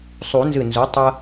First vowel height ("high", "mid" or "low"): high